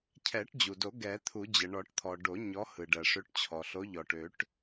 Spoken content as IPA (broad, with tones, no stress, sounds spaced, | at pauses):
cʰ ɛ˨˩˦ ʈ d͡ʑ u˩ d o˨˩˦ ɡ ɛ˨˩˦ t̪ʰ u˨˩˦ d͡ʑ ə˩ ɳ ɔ˨˩˦ ʈ t̪ʰ ɔ˩ ɖ o˨˩˦ ɲ ɔ˨˦ h ɯ˩ ɖ ɜ˩ ʂ ø˨˦ ʈ t͡ɕʰ ɔ˩ ɬ o˨˦ ʎ ɔ˩ ʈ ø˨˩˦ ʈ